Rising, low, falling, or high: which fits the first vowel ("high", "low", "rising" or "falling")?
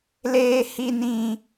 high